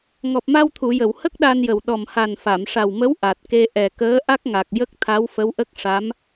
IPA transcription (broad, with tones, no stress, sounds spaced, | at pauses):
ŋ ɔ˨˩ p̚ m a˧ w t̪ʰ u˨˩˨ j ə˨˩˨ w h ə˦˥ k̚ ɗ a˧ n j ə˨˩ w ɗ ɔ˨˩ m h a˨˩ n f a˨˩˨ m ʂ a˨˩ w m ə˧˥ w ʔ a˨˩ t̚ k e˧ ʔ ɛ˨˩ k əː˧˥ ʔ a˦˥ k̚ ŋ a˨˩ k̚ j ə˦˥ k̚ t̪ʰ a˧˥ w f ə˧˥ w ʔ ə˦˥ k̚ ʂ a˧˥ m